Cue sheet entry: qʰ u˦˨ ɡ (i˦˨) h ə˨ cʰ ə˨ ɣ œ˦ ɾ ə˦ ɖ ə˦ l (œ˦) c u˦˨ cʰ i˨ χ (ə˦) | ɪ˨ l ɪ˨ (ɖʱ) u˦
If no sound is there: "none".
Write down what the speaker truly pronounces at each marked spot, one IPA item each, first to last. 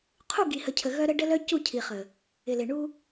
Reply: i˨, œ˦, ə˨, ɳ

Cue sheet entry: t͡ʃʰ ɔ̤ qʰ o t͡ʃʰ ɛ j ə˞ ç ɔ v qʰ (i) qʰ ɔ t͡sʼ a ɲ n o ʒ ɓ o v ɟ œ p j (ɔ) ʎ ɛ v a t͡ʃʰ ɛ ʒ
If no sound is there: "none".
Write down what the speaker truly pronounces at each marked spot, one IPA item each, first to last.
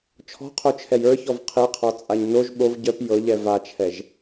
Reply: i, ɤ

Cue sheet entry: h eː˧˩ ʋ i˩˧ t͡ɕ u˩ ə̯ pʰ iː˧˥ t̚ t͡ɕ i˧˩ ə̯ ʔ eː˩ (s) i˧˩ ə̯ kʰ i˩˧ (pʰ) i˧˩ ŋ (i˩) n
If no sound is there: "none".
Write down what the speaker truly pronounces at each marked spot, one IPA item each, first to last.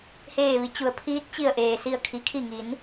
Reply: s, kʰ, i˩˧

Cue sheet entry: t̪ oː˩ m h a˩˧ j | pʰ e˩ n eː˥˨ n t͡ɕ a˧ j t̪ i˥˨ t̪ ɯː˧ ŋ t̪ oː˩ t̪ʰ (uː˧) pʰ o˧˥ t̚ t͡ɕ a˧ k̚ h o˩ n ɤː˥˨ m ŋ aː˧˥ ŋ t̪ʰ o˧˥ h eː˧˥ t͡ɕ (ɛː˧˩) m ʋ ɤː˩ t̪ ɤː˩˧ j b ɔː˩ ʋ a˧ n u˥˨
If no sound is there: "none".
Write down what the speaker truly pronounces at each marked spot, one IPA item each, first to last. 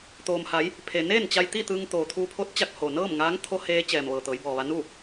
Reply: uː˧, ɛː˩

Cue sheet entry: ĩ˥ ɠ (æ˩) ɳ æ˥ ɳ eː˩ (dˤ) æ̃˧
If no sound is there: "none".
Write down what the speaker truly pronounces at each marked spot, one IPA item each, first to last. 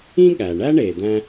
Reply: æ˩, d̪

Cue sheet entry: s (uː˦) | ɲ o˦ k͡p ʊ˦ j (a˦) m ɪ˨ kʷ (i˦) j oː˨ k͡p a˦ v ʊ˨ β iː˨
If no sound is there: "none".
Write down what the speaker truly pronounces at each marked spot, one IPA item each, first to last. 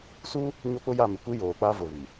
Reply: uː˦, a˦˨, i˦

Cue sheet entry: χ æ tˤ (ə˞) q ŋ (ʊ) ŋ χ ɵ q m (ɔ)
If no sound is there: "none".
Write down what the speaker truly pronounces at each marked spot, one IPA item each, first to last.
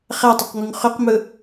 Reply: ə˞, u, ɵ

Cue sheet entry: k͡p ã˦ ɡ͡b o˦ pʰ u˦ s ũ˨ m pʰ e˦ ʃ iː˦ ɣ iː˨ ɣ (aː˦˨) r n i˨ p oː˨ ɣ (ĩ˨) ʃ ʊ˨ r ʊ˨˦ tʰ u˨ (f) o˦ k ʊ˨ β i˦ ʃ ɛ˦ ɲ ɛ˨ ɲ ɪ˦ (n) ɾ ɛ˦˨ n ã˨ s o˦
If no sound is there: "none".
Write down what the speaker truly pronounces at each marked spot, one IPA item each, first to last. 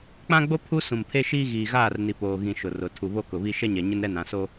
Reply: aː˦˨, ĩ˨, β, n

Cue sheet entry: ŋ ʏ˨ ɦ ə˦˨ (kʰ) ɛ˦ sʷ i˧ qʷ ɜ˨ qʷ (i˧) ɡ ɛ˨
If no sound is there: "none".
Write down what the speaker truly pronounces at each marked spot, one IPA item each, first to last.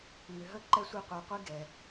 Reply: ǃ, i˦

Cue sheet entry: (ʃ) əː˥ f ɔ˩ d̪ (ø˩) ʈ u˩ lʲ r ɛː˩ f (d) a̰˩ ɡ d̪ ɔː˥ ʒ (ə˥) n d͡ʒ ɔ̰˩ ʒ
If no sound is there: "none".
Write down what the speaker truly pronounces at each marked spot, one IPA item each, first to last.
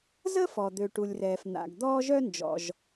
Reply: z, ø˩, n̪, œ˥

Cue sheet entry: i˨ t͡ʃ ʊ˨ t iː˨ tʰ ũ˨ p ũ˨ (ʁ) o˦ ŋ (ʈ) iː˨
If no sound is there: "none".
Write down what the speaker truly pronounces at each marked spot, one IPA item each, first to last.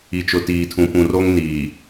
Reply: r, n

